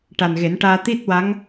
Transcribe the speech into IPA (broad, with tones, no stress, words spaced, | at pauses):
ʈa˨˩nɣe˨˩˦nʈaː˧ t̪i˦˥t̚wa˧˥ŋ